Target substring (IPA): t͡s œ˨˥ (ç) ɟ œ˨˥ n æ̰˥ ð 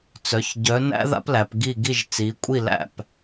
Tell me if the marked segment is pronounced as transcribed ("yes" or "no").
yes